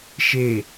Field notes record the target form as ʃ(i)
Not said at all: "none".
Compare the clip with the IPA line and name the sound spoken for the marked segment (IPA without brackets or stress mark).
e